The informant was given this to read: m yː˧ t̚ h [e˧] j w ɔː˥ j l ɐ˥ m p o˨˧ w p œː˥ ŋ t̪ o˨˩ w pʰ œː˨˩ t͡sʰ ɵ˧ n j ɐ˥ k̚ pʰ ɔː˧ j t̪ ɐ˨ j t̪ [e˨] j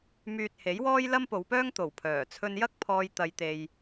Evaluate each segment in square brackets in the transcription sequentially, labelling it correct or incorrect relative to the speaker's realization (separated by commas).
incorrect, correct